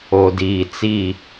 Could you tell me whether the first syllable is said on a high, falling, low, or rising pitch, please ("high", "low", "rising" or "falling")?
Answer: low